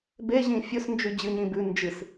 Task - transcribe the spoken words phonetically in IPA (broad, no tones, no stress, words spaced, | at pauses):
beʑĩ fʲɵs nd͡ʒʉd͡ʑɨ ɲĩbʉ nd͡ʒɨs